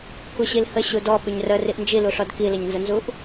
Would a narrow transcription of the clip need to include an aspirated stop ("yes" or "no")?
no